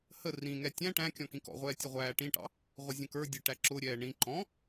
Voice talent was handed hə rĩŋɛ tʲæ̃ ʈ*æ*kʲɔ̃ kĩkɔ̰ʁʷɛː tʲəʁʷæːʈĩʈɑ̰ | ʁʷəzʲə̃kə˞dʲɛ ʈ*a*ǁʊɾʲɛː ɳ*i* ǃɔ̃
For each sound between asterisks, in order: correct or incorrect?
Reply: incorrect: æ̃, incorrect: æ, incorrect: ĩ

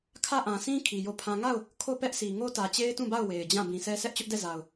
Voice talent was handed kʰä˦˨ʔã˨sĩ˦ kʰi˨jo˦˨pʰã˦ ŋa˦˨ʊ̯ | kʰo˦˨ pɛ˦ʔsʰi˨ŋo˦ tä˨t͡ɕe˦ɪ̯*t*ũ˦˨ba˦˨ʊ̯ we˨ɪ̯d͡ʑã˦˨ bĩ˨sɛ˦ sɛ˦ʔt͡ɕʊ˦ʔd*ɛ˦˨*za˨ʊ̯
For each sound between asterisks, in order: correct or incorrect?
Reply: correct, correct

